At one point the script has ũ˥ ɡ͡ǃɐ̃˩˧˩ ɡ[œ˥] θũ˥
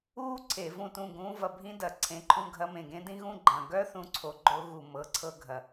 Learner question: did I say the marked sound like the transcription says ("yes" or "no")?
yes